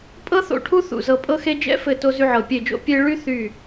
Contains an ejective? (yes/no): yes